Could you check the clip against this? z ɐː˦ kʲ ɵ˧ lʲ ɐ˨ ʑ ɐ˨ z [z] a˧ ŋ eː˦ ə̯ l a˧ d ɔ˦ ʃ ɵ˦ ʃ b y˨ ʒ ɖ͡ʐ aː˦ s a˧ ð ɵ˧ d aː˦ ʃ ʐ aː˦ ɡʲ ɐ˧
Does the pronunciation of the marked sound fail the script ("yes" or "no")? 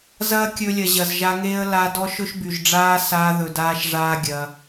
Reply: yes